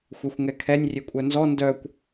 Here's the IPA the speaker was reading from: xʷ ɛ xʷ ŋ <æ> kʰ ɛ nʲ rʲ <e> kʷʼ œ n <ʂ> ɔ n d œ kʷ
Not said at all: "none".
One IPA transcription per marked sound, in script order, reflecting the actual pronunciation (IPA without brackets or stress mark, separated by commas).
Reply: ɛ, e, z